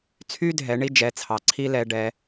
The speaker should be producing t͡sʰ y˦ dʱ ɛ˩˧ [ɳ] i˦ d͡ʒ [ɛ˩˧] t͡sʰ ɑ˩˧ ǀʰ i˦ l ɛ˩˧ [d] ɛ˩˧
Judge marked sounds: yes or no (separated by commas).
yes, yes, no